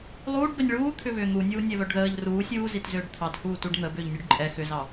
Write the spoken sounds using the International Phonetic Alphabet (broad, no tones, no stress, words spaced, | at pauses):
lˠuːɖ bɛnʲɭuː t̪ʰʏβʏːn̪unʲuː nʲɛβœɖðəːʎ ruːsʲ uː zitzʏːɖt̪ʰɑthuː tuɖn̪ə bʏːʎnʲuɖǃʼɛ xʏzɑ